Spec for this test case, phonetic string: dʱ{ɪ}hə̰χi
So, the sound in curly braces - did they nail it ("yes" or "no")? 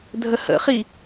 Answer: no